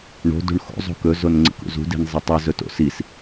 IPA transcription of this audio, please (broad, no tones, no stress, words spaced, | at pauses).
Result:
ɳo̤dṳɳ xo̰zˤo̤ kɵzon ŋ͡ǀḭkṵzṳdi̤n zˤetˤɨ zɵto̰sis